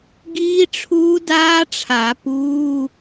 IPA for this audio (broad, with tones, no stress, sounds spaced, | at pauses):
ɡ iː˦˥ ʈ͡ʂʰ uː˦˥ d aː˦˥ ʈ͡ʂʰ a˨˩˦ p uː˧˥˧